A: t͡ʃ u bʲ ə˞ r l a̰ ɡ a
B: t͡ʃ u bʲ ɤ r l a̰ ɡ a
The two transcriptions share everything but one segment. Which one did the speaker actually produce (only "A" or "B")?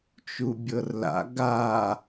B